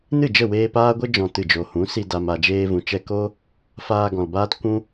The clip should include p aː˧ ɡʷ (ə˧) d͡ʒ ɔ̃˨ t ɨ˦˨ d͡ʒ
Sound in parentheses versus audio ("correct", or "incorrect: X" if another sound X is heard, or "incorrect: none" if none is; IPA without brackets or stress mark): correct